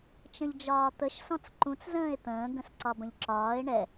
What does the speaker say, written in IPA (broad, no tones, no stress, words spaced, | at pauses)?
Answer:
t͡ʃə̃ʎd͡ʒɒːt̪əʃ sɔ̃t͡sǃũt͡s zə̃ːe̯t̪ə̃ː ɡə̃sǀɒbə̃ʎǁɒːe̯ ɳɛ